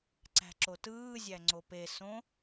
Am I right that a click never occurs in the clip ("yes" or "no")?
no